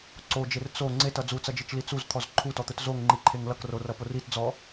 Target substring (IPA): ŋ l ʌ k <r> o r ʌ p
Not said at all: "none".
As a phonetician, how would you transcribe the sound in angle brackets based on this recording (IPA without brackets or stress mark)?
r